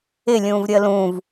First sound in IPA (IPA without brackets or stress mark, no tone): ɪ